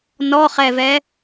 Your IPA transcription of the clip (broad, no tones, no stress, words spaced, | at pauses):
nɔχɛvɛ